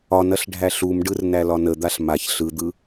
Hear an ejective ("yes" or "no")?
no